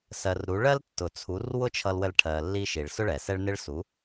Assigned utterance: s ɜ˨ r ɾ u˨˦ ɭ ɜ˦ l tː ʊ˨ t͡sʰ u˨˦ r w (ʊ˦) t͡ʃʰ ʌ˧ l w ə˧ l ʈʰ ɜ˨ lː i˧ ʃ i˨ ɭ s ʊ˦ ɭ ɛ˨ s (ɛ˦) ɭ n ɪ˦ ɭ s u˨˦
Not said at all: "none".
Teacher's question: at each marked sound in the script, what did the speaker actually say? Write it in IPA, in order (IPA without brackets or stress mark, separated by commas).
ʊ˦, ɛ˦